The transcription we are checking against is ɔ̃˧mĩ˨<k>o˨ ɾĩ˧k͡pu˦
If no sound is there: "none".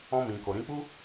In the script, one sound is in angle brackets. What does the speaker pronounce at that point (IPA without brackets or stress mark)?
k